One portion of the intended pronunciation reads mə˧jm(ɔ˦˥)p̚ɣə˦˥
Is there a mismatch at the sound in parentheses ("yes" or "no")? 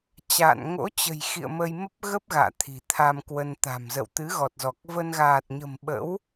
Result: yes